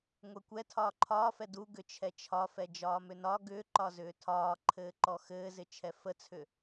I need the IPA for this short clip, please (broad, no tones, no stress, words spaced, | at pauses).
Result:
ŋʷɛkʷɛ tʰɒːǃʰɒːfɛ du ɡʏt͡ʃʰɛt͡ʃʰɒfɛ d͡ʒɒːmʏnɒ ɡʏːǃɒzʏː tʰɒːǃʰɘː ǃɔxɘːzɪ t͡ʃʰɛfət͡sʰʏ